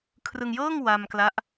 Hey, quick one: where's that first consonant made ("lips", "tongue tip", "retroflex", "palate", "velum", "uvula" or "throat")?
velum